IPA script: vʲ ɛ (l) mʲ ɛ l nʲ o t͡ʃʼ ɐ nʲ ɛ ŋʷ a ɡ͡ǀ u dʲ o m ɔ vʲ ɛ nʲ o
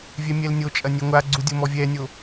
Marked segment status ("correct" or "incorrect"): incorrect